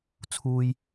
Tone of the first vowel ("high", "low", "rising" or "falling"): high